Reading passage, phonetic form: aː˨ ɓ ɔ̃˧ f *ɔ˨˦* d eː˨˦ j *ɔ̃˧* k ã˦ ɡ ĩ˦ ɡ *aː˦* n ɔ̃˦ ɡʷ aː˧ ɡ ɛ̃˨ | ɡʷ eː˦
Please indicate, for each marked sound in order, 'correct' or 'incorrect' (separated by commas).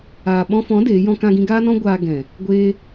incorrect, incorrect, correct